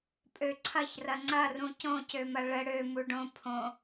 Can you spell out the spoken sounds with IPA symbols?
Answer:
pʼøǀʰɐç rɐŋ͡ǀɐrũ cõcømɐ ɭə ɽø muɖõ pʰõ

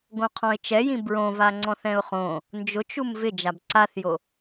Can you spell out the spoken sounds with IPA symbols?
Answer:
ɡõqʰɔ̃ɪ̯t͡ʃɛjĩ bɹõva ŋ͡ǀɔ̃θɛ̃ʊ̯χõ | nd͡ʒʊt͡ʃum vɪ d͡ʒabǀaθjo

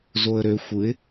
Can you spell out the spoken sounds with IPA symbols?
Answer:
zoə̯ɾø xʷɯɪ̯

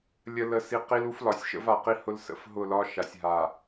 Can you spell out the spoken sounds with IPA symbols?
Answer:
lʲə˦ lə˦si˦ qi˦lu˦flɒ˨sʲʃə̰˦v a˨ qi˦hʊ˦lsə̰˦˨f ɦʊ˦˨lɒ˦ ʃa˨sʲɦa˨

